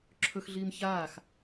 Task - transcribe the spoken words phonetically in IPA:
ǁʰɵxɮiːm çaːx

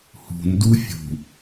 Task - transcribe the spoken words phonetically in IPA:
hṳndu fʲṳ

